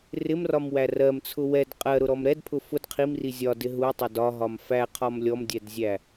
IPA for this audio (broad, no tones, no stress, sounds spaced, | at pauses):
r ɪ m r ɒ m w æ r ɜ m t͡sʰ ʊ w ɛ d qʼ ɜ ɾ ʊ ɾ ɔ m ɾ ɛ d pʰ ʊ f ʊ d qʰ i m r i zʲ ɒ d ɪ ɦ u tˤ ʌ d ɒ ɦ ɒ m f æ qʰ ɒ m lʲ ɔ m dʲ ɛ d zʲ æ